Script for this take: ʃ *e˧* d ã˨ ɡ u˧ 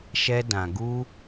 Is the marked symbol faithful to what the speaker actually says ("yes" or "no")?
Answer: no